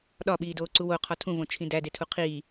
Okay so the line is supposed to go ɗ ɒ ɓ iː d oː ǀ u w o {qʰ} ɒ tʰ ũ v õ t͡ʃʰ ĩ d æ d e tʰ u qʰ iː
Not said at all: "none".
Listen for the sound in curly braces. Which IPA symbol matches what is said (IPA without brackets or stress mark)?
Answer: qʰ